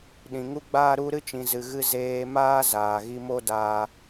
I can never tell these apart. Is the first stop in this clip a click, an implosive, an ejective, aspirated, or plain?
implosive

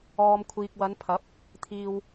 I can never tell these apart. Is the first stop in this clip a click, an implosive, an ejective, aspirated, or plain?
aspirated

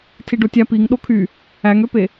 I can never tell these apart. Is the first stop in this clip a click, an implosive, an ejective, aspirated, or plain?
aspirated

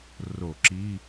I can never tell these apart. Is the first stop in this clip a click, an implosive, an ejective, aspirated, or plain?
click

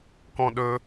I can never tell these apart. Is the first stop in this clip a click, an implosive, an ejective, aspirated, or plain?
plain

